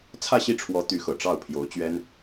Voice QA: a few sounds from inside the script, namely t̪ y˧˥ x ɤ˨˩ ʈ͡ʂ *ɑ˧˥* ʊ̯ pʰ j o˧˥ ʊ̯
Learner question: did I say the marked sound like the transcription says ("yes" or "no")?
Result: no